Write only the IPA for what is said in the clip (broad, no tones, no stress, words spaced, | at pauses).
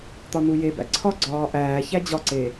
t̪ɒnujebæ̰ ǀʰɒɡ͡ǀɒː ʔæː çæd͡ʑɒǀe